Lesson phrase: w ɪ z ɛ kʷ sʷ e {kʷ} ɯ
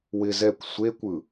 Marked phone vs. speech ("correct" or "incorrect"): correct